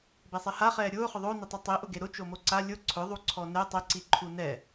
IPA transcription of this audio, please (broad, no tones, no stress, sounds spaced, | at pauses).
b e sˤ e h a χ ɛː ɾʲ ʊː χ ʊ ðˤ o n ɪ tˤ o tˤ i ʔ ʊ ɡ e ɾ ʊ t͡ʃ o m o ǀ a lʲ ʊ ǀʰ ʊ ðˤ u ǀʰ ɔ n ɛ tˤ ɛ ǀ i ǃʰ u n ɛ